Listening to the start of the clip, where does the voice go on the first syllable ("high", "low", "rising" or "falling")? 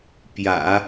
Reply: low